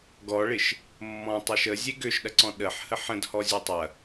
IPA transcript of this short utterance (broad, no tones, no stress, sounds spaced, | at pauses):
ɡ ɔ ɭ ɪ ʃ | mː ɔ̃ tˤ e ʃ ə zʲ e ɡ ø ʃ ɗ ɐ ǀ ɔ̃ ɗ ə ħ h ə ħ ə̃ d h ɔ zʲ ø tˤ ɐ